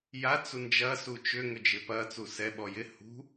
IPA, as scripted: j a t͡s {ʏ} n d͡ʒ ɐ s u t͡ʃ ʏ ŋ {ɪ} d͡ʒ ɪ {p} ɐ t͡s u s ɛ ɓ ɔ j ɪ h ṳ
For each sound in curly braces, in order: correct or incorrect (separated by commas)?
incorrect, incorrect, correct